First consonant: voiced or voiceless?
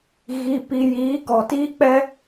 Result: voiced